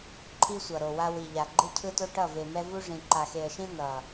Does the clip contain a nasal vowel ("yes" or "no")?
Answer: yes